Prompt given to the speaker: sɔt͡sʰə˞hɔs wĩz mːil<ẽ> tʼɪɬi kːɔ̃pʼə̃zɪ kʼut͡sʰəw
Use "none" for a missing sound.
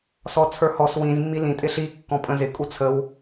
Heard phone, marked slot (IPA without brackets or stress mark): ĩ